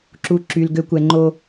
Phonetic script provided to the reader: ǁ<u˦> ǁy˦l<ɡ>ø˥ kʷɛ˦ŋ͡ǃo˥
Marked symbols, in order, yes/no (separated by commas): yes, yes